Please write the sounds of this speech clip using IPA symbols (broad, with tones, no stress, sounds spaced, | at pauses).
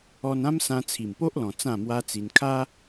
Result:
ɔ˧ n ã˦ m s ã˧ t͡sʰ i˨˩ m p o˦ ʔ l ɔ̃˨˩ t͡s ã˥˧ m w a˦ t͡s i˧ n kʰ a˦